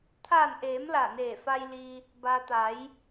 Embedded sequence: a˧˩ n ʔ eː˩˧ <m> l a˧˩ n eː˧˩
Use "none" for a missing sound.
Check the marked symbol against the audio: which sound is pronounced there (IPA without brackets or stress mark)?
m